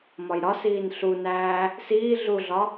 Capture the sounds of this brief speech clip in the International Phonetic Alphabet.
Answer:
m ɒ j ɾ ɒ s iː n ɬ u n æː | s iː ɮ u ɮ ɒ

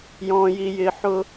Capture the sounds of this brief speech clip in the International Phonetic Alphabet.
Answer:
j ɔ̃ː˧ j i˧ j ɪː˧ ħ ʊ˦

